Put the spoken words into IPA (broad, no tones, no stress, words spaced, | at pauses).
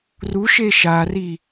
ru ʃeʃari